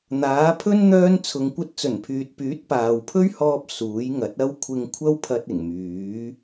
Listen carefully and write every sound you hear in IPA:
n̪aː˨˥pʰɵ˥n n̪œː˥nt͡sʰʊ˧ŋ kʷɐ˧t̚t͡sɵ˨˩npʰyː˨t̚pyː˨˥t̚ paː˨wpʰɵ˥ɥhɔː˧p̚ suː˨˥jŋɐ˨˥t̚ɐ˥w kʷʰɪ˧ŋkʷʰɐ˥wpʰɐ˧t̚ ɪ˨˩ŋmyː˨˥

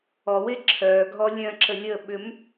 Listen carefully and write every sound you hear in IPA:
ɔwe ǁʰœ ɡʱɔlʲœ̃ǁə lʲə ɓʏm

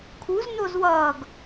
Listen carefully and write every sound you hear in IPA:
kʰuz nozwʌːɡ

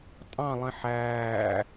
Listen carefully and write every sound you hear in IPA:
tʼɑ̃lˠĩ ħæː

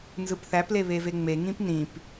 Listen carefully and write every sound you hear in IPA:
nzɯpθæple βeveŋ͡meŋĩp nĩp

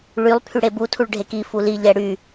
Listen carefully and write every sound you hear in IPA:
ɭylˠ pʰyɽebu tʰuɭɖʱeki fuli ʎɛɽy

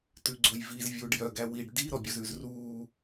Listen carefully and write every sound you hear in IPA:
tʉɡ͡ǀojviz vʲuːɖjœɡ æwiɖ di ɾɔbʲɵzʉzruː

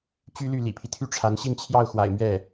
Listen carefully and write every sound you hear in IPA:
t͡ɕy˥ly˥˩ lḭ˨˩pʰi˦ t̪ʰy˥˩ʈ͡ʂʰa˧˥n ɕi˥˧nt͡ɕʰjɑ˥˩ʊ̯xwa̰˨˩ɪ̯ mɥɛ˥˩

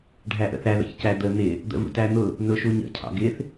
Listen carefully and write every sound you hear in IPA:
ɖʱæʔə̰θæ ðə̰çcæd̪ə n̪ɪ | d̪ə̰vṵtæn̪ʊ | nʊʃuɲə̰ cʰɑ̰ɡɪθ

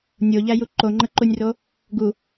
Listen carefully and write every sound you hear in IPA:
nʲoʎæju ǃoŋ͡ǃəǃunʲro | ɡu

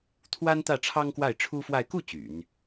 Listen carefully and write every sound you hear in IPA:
t̪ʰwa˥nt̪ä˥˩ ʈ͡ʂʰɑ˥ŋkwa˥˩ɪ̯ʈ͡ʂʰu˥fwa˥˧ɪ̯ ku˥˩ t͡ɕy̰˨˩˦n

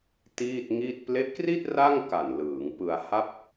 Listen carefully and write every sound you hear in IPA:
tiː˥˩t̚ŋiː˥˩t̚ ple˦˥ʔkri˥˩t̚ ra˥˩ŋ ka˨˩nlɯː˩˦ŋpɯ˧a̯ ha˥˩p̚

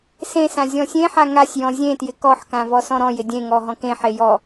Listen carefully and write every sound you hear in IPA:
sẽsã zʲɔ̃sʲẽħa ŋasʲjɔ̃ zʲẽtjɪ kɔħkã vɔsɔ̃ɾɔ̃jɪ dʲẽŋɔ ɦɔ̃kẽħe jɔ

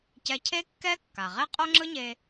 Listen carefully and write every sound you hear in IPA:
cɛ˧cʰe˥kːɛ˥kːa˩ ʁe˥qʼo˥ŋ͡ǁɯ˥ɲe˧

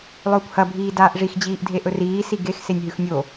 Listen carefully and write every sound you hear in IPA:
lˠɵːkʷhɐ bʱiːdaːʔʐix d͡ʑiːʔdʱeʔɵriː siɡex senʲɦʉxnʲo

